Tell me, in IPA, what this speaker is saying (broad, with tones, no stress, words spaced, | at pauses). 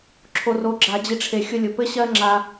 ǁʰo˧ro˧ɡ͡ǁa˧d͡ʑi˧ ʈ͡ʂʰe˧xʲʊ˦lʲʊ˧ pɘ˦ɕɜ˦ŋ͡ǁa˧